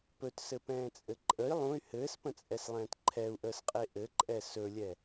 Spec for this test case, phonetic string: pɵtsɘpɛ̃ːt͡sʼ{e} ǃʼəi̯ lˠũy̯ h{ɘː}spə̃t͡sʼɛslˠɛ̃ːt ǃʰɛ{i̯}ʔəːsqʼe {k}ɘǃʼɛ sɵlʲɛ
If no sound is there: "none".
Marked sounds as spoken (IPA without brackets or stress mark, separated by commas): ɘ, ɘː, u̯, ʔ